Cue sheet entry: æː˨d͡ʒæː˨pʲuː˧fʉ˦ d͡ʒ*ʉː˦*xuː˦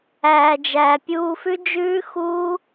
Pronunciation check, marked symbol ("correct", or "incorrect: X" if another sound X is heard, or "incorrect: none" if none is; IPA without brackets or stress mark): correct